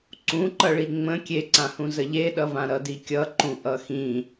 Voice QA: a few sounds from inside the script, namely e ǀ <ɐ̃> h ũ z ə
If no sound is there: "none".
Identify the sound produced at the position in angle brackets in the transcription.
ã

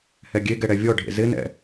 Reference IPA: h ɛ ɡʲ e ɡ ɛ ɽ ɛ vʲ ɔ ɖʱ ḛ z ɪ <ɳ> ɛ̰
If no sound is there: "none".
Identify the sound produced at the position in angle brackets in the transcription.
n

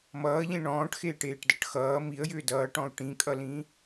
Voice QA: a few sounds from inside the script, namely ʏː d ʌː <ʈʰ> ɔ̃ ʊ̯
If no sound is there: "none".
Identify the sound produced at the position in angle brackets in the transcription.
ʈ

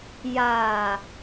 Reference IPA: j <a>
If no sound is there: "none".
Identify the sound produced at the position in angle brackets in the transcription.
a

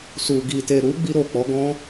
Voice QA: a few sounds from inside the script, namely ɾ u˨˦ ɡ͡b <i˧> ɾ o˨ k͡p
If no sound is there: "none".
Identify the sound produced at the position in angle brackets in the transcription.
i˧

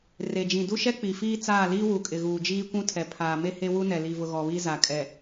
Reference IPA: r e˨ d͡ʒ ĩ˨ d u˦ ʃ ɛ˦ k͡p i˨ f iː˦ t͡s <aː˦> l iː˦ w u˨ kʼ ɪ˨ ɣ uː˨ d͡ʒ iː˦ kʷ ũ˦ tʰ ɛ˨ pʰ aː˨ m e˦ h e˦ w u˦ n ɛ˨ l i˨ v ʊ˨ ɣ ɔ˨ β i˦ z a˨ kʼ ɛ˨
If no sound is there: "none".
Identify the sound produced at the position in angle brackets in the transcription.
aː˦˨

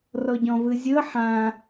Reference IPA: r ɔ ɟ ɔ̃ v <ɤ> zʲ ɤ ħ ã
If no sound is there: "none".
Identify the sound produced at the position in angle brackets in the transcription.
ɯ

